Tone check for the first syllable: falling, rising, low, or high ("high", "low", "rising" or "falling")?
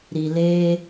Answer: low